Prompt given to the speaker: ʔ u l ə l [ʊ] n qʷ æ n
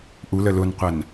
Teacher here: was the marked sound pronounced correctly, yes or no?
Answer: yes